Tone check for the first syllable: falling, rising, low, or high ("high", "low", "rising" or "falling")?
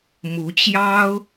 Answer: rising